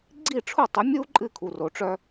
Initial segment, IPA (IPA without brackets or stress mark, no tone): ɡ͡ǀ